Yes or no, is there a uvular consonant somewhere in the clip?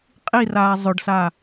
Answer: yes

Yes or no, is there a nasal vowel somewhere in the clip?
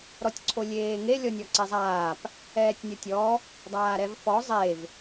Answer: no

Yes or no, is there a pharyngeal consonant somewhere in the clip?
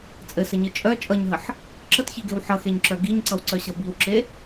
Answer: yes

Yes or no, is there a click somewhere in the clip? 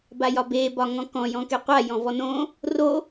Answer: no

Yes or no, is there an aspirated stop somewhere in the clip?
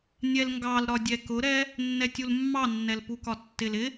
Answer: no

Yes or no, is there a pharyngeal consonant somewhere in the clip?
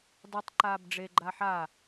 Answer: yes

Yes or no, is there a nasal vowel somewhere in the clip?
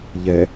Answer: no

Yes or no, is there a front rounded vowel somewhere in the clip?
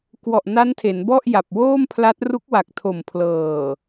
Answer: no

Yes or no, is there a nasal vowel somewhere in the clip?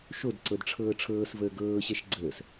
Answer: no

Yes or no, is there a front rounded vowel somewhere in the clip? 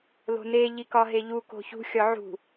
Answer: no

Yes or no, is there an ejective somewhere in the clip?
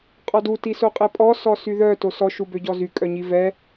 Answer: yes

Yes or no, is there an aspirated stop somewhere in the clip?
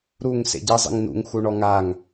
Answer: no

